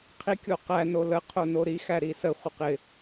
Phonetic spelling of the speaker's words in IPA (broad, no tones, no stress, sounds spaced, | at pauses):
qʰ i kʲ o q æ n o l ə qʰ o n o ɾ i x æ ɾ i s ə χʷ ə q ɪ